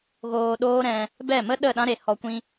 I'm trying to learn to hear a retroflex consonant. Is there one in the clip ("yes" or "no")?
no